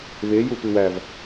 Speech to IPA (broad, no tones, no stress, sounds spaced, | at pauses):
β e j u p ɨ w æ v